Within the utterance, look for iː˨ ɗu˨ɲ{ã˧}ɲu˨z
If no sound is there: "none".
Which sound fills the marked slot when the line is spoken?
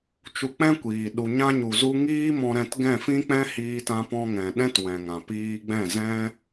ã˧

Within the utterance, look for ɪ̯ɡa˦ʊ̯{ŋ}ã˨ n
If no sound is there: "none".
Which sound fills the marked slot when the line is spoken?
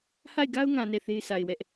ŋ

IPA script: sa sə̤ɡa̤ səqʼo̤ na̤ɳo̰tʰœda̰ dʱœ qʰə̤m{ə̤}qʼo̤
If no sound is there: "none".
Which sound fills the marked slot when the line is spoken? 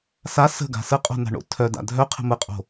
ə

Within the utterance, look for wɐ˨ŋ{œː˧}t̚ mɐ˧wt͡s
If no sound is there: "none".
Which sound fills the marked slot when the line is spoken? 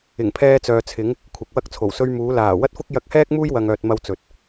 œː˨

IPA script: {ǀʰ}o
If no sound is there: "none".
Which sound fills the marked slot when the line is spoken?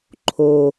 ǃʰ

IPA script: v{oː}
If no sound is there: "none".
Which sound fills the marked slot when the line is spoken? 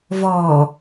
ɔː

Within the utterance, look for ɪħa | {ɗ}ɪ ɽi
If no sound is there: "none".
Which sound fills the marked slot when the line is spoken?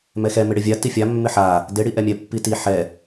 d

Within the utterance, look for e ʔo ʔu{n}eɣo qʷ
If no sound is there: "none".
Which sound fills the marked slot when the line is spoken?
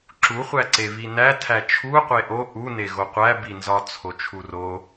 n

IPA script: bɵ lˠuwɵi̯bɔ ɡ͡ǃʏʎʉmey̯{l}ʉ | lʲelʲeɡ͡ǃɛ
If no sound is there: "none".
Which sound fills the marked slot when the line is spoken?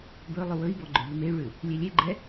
ɭ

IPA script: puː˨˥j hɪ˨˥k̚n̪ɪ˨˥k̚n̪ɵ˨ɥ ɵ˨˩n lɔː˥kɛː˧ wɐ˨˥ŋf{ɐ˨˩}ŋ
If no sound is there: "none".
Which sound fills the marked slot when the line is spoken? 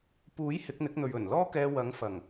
ɐ˨˩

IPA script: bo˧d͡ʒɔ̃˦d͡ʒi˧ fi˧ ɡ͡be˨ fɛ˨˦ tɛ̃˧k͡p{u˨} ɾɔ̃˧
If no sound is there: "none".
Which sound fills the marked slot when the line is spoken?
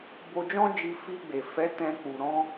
u˨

